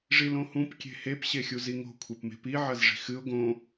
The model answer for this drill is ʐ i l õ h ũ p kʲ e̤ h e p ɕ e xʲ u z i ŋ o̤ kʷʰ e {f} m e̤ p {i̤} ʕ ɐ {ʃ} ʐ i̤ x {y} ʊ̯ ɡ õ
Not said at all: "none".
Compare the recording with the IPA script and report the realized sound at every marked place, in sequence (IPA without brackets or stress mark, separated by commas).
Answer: p, i, z, ɨ